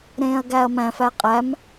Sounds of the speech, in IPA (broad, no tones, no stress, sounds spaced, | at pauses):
ɾ ẽː ɐ̯ ɡ æ ɐ̯ m æ̃ f æ qʼ æ m